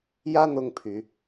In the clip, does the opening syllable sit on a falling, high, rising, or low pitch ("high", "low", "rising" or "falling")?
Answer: high